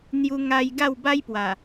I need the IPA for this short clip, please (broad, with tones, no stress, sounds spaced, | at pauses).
n̪ j u˧ ŋ a˧ j ɡ a˥˧ w b a˦ j p w a˨˩